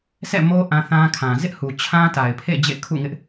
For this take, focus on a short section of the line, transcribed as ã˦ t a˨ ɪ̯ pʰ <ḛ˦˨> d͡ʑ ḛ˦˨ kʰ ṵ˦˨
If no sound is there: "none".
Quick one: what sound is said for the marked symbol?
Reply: ḛ˦˨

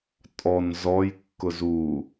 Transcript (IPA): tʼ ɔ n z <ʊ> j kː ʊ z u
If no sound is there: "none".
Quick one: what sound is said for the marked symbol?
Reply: ɔ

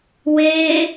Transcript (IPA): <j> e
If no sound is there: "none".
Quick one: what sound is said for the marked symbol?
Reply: w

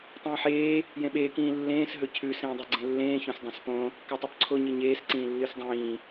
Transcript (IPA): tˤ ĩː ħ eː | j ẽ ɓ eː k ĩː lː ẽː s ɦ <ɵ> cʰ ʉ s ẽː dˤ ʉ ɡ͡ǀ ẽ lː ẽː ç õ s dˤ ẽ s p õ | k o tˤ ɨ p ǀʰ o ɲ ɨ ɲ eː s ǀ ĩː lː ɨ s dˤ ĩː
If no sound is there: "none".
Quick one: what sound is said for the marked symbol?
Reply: ɵ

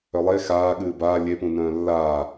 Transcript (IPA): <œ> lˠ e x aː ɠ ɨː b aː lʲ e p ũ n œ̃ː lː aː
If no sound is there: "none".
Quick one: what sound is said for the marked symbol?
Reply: œ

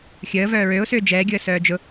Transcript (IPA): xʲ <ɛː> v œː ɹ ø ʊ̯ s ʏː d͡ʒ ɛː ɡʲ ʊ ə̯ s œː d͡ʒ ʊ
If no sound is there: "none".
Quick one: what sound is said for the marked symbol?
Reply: əː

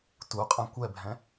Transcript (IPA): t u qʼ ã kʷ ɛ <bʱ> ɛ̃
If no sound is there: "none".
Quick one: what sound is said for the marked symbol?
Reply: bʱ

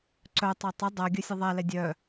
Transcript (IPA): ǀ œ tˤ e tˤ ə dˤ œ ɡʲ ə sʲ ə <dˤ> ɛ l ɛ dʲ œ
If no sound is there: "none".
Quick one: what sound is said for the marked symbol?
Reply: ðˤ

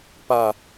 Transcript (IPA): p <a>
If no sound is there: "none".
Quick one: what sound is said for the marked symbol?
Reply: a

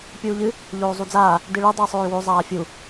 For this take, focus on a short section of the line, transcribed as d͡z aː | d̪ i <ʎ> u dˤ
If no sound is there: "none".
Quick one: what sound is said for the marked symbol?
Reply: ɭ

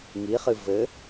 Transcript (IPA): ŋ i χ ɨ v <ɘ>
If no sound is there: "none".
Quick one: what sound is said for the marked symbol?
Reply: ɘ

